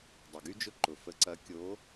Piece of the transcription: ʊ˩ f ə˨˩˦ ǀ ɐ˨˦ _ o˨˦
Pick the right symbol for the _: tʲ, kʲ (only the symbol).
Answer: kʲ